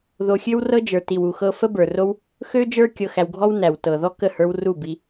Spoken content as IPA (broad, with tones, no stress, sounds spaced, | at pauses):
ð o˧ xʲ ø˦ w r ɤ˦ d͡ʒ ə˞˨ t i˨ w u˨ x ɤ˧ f ə˦ b ə˞˨ r o˦ w | x ø˦ d͡ʒ ə˞˦ kʲ ɤ˧ x æ˧ w ɡʱ ɔ˦ w n æ˨ w t ɤ˨ ð ɔ˦ k ə˦˨ h ə˞˧ w r u˦˨ b i˧